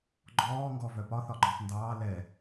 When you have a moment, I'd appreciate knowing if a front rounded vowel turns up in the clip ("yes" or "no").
yes